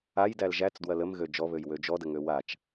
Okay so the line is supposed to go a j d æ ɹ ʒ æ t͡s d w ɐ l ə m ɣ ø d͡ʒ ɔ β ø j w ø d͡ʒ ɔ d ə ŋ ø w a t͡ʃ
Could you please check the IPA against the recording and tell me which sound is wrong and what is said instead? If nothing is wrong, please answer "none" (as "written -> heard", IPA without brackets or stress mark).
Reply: ɹ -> l